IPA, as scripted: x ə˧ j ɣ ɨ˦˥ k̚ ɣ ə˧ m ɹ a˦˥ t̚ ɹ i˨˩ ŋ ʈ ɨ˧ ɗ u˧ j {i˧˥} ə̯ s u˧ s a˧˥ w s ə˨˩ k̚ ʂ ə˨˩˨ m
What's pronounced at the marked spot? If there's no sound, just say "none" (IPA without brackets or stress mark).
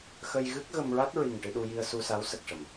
i˧